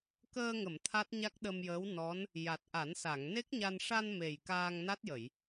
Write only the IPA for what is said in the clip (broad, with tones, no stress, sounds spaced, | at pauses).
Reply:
k əː˧ ŋ ə˨˩˨ m t̪ʰ a˦˥ t̚ ɲ a˦˥ k̚ ɗ ə˧ m j əː˧˥ w n ɔ˧˥ n | j a˨˩ t̚ ʔ a˨˩˦ n s a˨˩˨ ŋ n e˦˥ k̚ ɲ a˧ n ʂ a˧ n m e˨˩ j k aː˧ ŋ n a˦˥ t̚ j ə˨˩˨ j